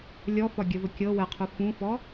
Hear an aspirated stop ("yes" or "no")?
yes